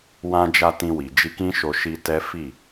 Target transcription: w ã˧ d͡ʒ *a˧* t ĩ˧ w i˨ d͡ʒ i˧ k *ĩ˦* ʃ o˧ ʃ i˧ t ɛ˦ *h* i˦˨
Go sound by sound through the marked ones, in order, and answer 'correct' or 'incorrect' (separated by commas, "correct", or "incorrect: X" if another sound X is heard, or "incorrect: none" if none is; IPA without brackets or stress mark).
correct, correct, incorrect: f